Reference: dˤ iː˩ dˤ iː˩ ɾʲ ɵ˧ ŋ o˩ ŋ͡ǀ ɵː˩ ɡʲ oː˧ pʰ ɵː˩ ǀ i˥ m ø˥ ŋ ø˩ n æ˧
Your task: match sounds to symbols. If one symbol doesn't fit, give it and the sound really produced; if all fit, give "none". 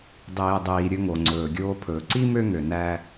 none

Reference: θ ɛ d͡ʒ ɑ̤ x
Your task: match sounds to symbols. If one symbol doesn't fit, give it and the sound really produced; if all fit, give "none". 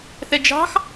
none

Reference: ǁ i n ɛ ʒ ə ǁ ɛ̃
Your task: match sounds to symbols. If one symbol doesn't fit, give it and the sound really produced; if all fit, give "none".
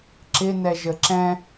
i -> ɪ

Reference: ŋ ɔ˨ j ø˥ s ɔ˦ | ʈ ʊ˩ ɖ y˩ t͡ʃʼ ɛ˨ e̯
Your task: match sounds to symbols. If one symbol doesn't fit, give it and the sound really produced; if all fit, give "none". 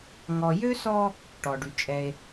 ʊ˩ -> ɔ˩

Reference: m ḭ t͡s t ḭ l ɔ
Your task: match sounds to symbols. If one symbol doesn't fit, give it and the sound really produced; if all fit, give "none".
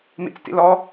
none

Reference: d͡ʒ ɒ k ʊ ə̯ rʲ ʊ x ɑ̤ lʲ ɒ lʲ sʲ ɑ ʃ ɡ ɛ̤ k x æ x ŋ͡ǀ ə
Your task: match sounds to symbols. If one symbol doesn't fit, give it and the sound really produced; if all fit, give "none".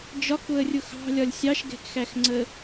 none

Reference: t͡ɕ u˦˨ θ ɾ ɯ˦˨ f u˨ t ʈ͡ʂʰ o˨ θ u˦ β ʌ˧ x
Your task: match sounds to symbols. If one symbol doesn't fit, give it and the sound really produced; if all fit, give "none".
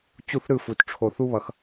none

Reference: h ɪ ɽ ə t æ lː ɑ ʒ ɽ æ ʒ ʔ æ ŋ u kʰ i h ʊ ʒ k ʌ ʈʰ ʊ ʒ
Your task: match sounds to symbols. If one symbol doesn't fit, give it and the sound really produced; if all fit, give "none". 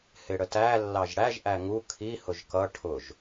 none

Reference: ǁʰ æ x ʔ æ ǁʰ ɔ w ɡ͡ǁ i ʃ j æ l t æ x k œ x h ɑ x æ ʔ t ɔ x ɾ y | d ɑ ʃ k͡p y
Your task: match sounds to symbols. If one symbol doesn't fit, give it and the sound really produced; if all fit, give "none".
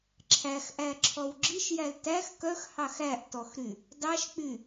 none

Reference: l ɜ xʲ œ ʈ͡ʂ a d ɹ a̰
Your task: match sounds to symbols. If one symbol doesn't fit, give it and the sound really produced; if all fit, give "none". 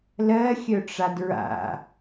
none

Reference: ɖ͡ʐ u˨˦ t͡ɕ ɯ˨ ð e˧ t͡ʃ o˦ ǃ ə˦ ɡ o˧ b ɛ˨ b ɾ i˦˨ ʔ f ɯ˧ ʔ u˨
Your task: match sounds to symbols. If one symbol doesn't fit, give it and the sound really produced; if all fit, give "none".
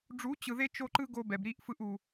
ə˦ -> ɯ˦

